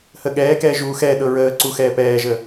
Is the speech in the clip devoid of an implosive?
no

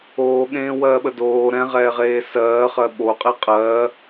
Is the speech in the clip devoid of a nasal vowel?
no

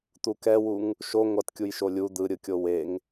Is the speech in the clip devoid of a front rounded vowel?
yes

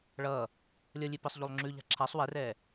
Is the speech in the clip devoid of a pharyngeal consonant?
yes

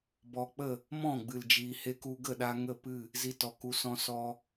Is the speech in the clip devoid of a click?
yes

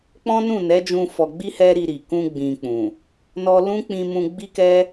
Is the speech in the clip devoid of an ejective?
yes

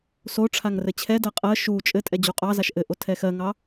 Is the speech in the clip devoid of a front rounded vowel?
yes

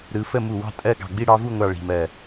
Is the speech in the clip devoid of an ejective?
no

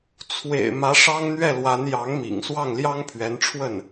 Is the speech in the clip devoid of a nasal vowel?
yes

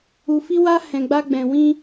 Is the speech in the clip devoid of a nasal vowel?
no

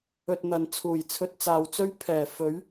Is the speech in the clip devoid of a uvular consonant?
yes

